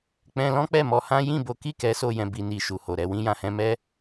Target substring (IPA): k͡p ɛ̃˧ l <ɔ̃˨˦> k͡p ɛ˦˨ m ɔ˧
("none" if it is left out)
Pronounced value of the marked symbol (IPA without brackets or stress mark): ɔ̃˦